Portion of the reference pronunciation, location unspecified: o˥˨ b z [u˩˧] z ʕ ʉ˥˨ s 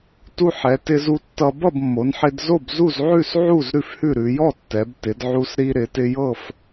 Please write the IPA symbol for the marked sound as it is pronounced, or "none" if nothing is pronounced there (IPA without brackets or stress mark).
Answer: u˥˨